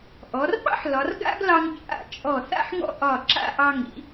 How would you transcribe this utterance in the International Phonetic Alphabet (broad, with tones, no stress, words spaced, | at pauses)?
ʔɔ˩˧rɓɑ̰˥ħ lɒ˩˧rɡa̰˥ɡlɑ˧ŋ t͡ʃʼa̰˧˩ t͡ʃʼɔ˧˩ θa̰˥˧ħŋɔ̰˥˧ ʔɒ˧˩ǁa̰˥˧ʔɑ˧ ŋḭ˩˧